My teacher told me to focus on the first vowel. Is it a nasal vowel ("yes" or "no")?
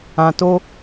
yes